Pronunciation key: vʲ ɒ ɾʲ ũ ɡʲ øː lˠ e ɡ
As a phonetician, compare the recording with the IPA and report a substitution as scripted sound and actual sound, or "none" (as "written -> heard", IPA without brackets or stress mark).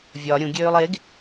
none